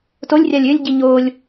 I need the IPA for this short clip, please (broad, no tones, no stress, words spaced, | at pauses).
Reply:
tolʲrʲalʲ ʏlʲɟi ɲolʲ